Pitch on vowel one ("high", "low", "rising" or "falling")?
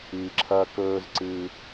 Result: low